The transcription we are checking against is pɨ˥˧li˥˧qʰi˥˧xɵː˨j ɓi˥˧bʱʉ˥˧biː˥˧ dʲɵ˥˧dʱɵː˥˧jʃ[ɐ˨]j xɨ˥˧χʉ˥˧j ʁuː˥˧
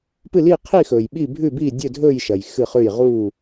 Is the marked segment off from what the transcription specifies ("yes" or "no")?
no